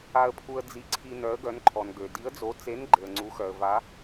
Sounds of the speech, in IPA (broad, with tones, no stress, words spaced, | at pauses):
a˨ə̯pʰu˨ə̯ d͡zi˨ǀʰi˨ nœ˨˦ə̯ɡœ˨˦nǃʰɔ˨nɡø˨ di˨˦ə̯d͡zo˨˦ t͡se˨˦n ɡ͡ǃe˨ə̯ŋ͡ǀu˨˦xœ˨ə̯ va˨˦